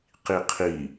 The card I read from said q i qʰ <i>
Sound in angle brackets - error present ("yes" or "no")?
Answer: no